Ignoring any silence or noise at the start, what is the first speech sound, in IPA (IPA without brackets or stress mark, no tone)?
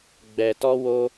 ɡ͡b